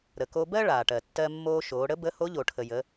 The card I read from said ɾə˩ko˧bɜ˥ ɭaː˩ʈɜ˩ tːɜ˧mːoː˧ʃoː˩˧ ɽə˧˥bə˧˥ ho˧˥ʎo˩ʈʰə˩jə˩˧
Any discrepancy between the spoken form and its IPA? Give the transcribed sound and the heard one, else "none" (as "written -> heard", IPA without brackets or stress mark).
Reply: none